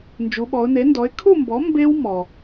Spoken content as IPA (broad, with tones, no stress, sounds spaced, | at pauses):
n d͡ʒ u˩˧ ɓ ɔ˩˧ ʊ̯ n e˩˥ n d ɔ˩˥ ɪ̯ kʰ u˥˨ m b ɔ˩˥ m b e˦˥ w m ɔ˩